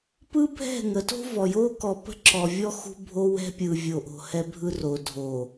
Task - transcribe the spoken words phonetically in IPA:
p ɯ˦ bʱ ɛ̤˦˨ ŋ ə˨˦ t o̤˦ v ɔ˨ j o˦ k ɔ˨ p ə̤˦ ǁ ɔ˨ vʲ ɔ˦ x ṳ˦ bʱ o˦ w ɛ̤˦ pʲ ɯ˨ vʲ o˨ ʔ o̤˨ h ɛ˦ bʱ ɯ˦ r o˨ dʱ o˨

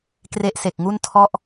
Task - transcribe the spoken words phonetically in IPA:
k r e˦˥ ʔ s e˨˩ k̚ ŋ u˥˩ n tʰ ɔ˥˩ ʔ

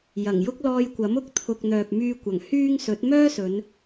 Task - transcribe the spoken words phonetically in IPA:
j ɐ˨˩ ŋ j ʊ˥ k̚ l ɔː˧ j kʷ ɐ˨˥ m ʊ˨˥ k̚ t̪ʰ ʊ˨ k̚ n̪ œː˨ p̚ m yː˧ kʷ ɐ˨˩ ŋ h yː˥ ŋ s ɵ˨˥ t̚ m œː˥ s ɵ˨˧ n

